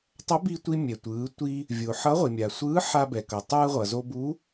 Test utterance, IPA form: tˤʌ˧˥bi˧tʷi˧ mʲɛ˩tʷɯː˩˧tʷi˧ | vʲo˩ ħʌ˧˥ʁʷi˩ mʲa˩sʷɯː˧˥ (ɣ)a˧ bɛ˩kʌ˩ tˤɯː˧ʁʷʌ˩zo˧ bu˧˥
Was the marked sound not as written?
yes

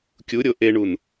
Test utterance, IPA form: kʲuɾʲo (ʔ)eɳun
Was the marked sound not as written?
no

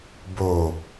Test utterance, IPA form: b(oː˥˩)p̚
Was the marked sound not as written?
yes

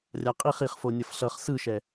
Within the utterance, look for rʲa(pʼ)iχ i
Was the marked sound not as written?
yes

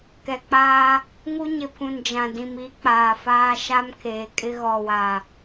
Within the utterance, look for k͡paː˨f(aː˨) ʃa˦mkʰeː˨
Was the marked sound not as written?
yes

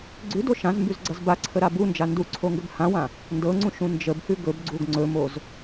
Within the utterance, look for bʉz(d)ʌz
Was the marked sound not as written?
yes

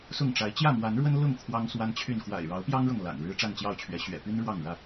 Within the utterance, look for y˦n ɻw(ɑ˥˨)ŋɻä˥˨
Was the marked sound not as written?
no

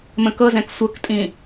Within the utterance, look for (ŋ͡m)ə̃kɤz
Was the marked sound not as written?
yes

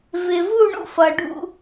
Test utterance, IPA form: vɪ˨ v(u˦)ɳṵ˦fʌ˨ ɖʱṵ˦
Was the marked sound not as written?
yes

